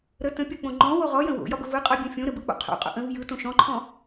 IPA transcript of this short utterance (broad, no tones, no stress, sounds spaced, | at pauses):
ɾ ə t ə̃ pʲ ɒ k͡p õ ŋ͡ǃ ɔ̃ w o ʁ ɔ j ə̃ w o̰ j ɒ b ə v ɯ qʼ ɒ bʲ õ fʲ õ ɾ ə b ɯ k͡p o̰ qʰ o̰ qʼ o̰ ʔ ə̃ v j ɯ t õ ʃ ɔ̃ ǃʰ ɔ̃